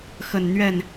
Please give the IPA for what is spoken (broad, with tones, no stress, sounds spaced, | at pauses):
x ə˨˩ n n̪ ɥ ɛ˥˩ n